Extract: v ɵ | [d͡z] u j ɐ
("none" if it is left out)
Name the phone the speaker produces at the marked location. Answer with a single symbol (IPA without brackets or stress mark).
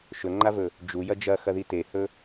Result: d͡ʒ